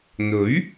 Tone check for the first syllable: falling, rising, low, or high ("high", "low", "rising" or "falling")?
rising